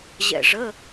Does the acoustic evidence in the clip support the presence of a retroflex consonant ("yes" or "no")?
yes